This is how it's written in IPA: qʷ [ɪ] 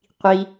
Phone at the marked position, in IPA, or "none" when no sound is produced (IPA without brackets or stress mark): i